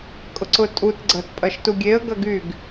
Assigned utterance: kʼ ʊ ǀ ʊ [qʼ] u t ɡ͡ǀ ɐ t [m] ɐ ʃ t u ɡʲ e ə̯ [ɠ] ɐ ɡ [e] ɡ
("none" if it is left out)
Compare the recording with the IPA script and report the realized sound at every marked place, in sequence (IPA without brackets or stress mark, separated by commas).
tʼ, pʼ, ɡ, y